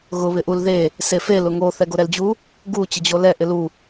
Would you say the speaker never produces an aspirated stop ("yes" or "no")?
yes